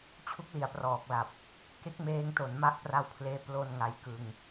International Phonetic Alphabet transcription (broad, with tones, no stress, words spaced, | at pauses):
t͡ɕʰu˦˥k̚li˩˦a̯prɔː˨˩k̚la˨˩p̚ | ke˦˥k̚meː˧ŋto˩˦nma˦˥ʔ pra˦˥wpʰleː˦˥ plo˧n ŋa˧jkɯ˧ŋ